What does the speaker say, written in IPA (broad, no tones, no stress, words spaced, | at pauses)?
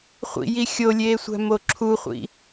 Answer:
χʷḭji xʲolʲeːsʷæ̤mo ǁʰuχʷḭ